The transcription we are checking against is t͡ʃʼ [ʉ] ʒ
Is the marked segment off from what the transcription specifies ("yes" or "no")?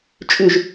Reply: no